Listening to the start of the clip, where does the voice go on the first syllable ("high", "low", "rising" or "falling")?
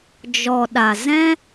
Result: low